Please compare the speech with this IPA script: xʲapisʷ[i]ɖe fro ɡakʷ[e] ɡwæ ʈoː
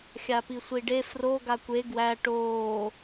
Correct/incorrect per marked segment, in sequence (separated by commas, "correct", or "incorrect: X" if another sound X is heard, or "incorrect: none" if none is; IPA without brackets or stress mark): correct, correct